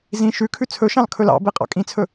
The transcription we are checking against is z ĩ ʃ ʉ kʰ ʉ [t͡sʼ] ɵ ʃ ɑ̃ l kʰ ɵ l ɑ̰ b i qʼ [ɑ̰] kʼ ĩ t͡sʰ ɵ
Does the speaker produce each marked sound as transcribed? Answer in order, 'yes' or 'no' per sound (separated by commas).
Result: no, yes